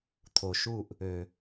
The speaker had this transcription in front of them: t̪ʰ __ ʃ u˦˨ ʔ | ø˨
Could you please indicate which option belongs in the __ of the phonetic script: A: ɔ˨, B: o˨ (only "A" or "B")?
B